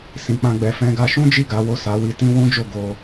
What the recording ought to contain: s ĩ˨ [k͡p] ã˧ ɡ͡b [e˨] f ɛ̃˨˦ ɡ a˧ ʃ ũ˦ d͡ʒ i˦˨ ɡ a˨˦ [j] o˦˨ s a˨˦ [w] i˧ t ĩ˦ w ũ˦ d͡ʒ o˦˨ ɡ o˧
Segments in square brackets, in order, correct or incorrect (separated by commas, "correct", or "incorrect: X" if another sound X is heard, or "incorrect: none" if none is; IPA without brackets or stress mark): correct, incorrect: ɛ˨, incorrect: w, correct